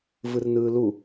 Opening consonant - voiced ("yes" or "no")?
yes